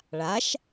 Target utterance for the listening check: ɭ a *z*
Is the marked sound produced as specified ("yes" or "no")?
no